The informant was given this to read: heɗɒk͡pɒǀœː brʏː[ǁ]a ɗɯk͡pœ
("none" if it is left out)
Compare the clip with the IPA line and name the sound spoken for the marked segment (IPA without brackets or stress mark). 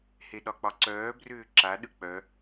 ǁ